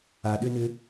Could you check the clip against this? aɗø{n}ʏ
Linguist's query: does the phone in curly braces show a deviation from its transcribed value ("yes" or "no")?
no